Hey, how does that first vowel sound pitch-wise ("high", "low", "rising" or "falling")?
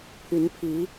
rising